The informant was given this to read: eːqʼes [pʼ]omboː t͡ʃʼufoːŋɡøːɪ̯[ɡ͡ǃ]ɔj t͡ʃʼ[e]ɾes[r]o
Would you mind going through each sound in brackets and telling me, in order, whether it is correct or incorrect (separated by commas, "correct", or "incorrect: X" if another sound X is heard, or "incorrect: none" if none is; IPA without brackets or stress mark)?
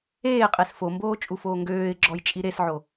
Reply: incorrect: f, incorrect: ɡ͡ǁ, incorrect: i, incorrect: ʕ